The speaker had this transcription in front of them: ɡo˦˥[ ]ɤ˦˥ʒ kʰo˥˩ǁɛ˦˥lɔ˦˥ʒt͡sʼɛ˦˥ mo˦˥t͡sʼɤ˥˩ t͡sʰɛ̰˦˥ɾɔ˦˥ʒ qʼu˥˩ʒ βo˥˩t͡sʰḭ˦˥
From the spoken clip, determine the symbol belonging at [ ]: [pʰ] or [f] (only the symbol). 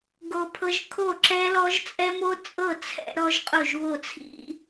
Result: pʰ